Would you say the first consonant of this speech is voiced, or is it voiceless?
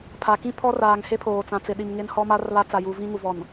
voiceless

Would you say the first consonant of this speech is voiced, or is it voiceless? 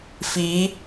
voiceless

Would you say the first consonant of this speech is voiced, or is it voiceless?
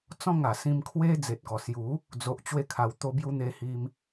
voiceless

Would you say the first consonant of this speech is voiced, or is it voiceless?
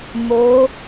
voiced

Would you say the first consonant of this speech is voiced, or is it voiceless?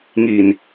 voiced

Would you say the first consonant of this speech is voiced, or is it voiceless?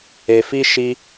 voiceless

